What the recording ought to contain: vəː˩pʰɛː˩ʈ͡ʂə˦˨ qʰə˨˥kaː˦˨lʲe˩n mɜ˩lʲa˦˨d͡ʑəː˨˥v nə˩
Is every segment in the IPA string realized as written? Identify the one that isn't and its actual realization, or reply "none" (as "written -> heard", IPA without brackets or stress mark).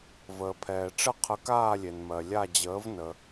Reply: none